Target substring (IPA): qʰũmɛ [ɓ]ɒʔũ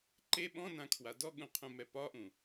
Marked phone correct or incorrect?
incorrect